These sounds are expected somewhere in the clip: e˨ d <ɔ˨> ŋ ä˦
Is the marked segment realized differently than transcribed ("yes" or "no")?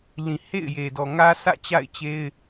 no